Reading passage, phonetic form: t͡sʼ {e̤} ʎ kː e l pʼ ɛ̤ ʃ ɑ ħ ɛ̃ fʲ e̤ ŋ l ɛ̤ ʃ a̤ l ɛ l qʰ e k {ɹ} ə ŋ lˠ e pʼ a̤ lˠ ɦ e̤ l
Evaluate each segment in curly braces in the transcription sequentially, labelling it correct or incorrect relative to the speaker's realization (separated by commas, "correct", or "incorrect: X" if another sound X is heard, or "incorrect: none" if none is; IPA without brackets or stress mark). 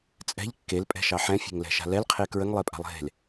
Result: incorrect: ɛ̤, correct